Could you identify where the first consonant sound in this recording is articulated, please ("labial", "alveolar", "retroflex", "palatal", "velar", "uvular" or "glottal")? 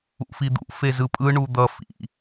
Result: labial